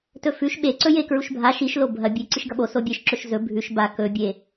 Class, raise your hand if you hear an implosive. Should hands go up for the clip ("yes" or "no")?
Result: yes